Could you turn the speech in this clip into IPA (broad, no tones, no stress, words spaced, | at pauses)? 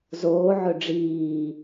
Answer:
zoː ʕɵɖ͡ʐiː